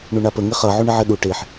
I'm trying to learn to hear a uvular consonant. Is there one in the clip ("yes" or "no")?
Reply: yes